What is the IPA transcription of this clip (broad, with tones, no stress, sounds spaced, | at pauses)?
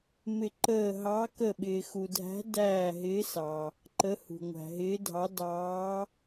m ɪ˦˨ ǃ əː˦˨ ɦ ɑ˧˥ k ə˦˨ ɓ ɪː˨ x u˨ dʱ æ̤˧˥ d æː˦˨ ɦ ɪː˧˥ s ɑ˨ | ǃ ə˧˥ h ṳ˨ ŋʷ æ̤˨ ɦ ɪː˧˥ dʱ ɑ˧˥ d ɑː˧˥